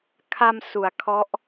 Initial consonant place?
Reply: velar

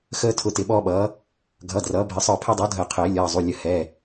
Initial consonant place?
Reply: velar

